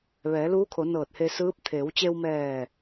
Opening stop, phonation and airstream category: aspirated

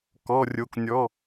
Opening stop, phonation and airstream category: plain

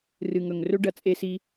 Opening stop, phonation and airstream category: plain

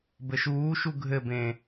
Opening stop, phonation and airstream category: plain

